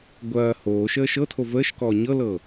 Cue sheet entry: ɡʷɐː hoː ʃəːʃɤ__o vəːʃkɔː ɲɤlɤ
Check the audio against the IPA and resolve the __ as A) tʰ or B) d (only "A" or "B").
A